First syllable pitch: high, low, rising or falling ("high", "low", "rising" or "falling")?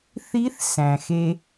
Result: rising